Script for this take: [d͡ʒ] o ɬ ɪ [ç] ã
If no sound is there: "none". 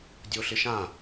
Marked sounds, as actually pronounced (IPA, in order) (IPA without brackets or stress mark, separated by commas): dʲ, ʃ